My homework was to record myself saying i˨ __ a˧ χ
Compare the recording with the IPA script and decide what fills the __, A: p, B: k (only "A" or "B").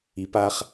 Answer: A